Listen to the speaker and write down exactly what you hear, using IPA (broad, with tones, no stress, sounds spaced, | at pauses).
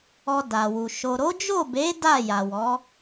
ɔ˧ d a˨ w u˨ ʃ o˨ ɾ o˨˦ d͡ʒ o˦˨ b e˨˦ d a˦˨ j a˨ w ɔ˨˦